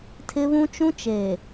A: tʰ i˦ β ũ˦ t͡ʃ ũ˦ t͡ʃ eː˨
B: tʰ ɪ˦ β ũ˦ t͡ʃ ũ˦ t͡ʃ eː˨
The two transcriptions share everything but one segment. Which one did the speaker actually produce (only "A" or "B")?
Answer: B